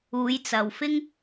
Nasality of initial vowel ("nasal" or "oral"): oral